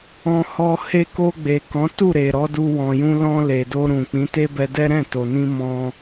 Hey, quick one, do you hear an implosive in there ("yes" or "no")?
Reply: no